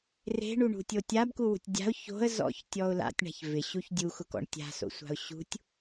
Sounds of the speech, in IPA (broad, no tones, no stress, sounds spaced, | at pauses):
r e̤ ɳ u ɳ ṳ tʲ o tʲ a b k u w ṳ tʲ dʲ a̤ ʊ̯ ç o̤ ə̯ z ɔ̰ ç tʲ ɔ ʊ̯ l a̰ tʲ ɳ a̤ ç v ɪ ɕ u ç dʲ u x ʊ k ɔ̰ ɳ tʲ a̤ s o̰ sʷ a̤ ʊ̯ ɕ ṳ tʲ